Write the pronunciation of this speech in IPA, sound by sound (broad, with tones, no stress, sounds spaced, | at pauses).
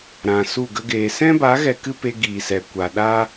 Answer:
ɾ ã˨ s u˦˨ ɡ ə˦ ɡ eː˧ s ɛ̃˦ b a˨˦ ɣ ɛ˧ k ɨ˦ p e˧ ɡ iː˨ s ɛ˨ kʷ a˨ ɗ a˦